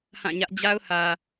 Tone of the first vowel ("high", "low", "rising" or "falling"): falling